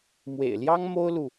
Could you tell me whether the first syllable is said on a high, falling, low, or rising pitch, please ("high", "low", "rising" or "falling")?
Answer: low